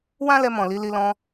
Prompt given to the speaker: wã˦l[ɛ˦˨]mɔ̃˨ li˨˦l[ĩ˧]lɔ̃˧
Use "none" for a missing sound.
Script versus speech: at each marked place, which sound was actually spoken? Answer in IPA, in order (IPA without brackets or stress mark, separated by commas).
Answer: ɛ˧, i˧